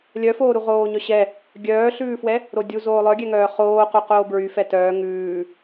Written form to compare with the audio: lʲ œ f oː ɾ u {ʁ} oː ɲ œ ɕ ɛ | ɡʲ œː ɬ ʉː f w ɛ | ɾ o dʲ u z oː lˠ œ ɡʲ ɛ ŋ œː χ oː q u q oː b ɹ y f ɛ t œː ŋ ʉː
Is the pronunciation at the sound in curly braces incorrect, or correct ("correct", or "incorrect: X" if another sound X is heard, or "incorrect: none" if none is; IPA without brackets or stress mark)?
correct